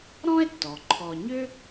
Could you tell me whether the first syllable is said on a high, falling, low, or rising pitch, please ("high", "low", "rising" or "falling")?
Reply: high